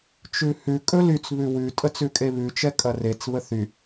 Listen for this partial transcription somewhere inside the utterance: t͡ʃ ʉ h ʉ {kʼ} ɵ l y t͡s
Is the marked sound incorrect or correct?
correct